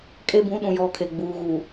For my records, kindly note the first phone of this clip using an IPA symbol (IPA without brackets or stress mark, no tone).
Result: kʼ